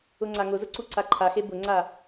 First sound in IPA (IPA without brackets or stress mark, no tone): ʊ